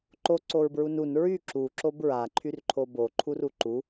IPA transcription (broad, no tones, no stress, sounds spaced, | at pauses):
ǃ o ǀ o ɹ b ɹ u n u n ɹ y ǁ u ǁ o b ɹ a ǃʰ y r ǃʰ o b o ǃʰ u r u ǃ u